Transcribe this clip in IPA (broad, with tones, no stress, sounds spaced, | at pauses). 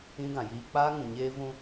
ĩ˦ ɡ ã˨ j iː˦ k͡p aː˦ ŋ ũ˨ ɲ eː˦ v ũ˦